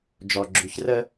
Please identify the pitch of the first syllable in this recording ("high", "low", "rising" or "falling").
low